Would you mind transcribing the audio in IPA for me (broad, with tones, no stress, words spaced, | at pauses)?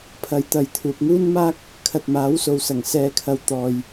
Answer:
pʰɐ˨˥jt̪ɐ˨j t̪ʰuː˨p̚ŋuː˥nmaː˥k̚ | kʰɐ˨t̚maː˨˥wso˨wsɐ˨˩ŋ sɛː˨kʰɐ˨w t̪ɔː˨j